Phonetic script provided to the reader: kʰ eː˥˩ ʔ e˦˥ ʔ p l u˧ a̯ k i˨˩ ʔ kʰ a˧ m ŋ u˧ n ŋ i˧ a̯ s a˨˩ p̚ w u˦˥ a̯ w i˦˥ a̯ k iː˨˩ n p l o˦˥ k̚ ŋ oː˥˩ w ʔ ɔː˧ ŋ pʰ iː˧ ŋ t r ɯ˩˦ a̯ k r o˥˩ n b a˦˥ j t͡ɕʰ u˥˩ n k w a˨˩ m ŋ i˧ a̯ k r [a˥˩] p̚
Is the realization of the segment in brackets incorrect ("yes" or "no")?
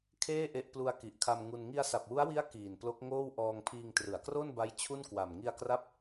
yes